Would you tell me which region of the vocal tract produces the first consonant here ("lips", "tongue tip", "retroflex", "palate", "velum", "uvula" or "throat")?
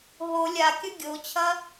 throat